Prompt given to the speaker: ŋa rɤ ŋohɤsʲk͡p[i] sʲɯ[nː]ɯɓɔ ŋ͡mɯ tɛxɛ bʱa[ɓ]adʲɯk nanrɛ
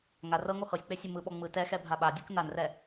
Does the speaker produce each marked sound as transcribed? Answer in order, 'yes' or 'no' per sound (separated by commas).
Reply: no, no, yes